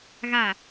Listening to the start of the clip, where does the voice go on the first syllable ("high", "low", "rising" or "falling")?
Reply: low